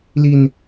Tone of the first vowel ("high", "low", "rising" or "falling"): low